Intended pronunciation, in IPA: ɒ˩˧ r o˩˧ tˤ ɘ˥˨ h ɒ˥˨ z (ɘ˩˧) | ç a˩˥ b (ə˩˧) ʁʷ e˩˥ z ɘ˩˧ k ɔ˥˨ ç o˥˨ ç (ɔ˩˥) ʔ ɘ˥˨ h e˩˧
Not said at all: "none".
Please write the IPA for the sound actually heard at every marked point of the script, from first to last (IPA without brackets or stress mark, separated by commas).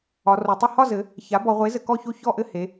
ɘ˩˧, ɔ˩˧, ɔ˥˨